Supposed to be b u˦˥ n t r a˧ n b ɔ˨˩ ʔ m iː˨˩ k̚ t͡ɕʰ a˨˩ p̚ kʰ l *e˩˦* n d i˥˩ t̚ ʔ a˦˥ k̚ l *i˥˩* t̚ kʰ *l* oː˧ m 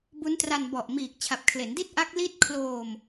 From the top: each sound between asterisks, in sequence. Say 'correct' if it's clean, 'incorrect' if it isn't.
correct, correct, correct

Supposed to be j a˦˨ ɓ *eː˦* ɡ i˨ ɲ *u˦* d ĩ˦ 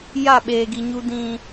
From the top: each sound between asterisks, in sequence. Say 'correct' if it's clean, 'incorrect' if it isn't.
incorrect: eː˨, correct

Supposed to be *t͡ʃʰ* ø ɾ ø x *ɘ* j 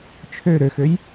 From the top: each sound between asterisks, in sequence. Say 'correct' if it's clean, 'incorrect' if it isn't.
correct, incorrect: ø

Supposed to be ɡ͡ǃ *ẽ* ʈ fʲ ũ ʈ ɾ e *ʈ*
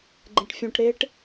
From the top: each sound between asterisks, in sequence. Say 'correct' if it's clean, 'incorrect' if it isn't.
correct, correct

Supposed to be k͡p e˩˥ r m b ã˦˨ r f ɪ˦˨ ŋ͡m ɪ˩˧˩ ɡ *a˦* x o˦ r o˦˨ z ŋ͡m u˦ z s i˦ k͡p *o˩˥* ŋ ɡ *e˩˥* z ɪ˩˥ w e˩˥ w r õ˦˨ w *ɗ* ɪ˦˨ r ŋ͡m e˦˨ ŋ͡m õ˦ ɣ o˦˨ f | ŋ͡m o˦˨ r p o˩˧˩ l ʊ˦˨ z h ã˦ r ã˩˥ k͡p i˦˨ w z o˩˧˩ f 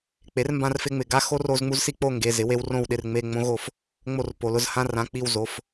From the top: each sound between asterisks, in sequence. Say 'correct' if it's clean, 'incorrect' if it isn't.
correct, incorrect: o˦˨, incorrect: e˩˧˩, correct

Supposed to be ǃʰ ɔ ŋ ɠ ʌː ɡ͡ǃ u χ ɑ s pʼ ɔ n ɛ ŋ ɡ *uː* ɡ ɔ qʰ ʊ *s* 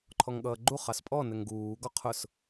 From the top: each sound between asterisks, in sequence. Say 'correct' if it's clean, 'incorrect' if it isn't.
correct, correct

